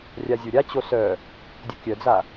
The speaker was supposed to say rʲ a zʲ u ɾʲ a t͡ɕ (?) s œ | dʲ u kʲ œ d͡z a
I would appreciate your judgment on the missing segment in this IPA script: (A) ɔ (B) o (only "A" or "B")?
B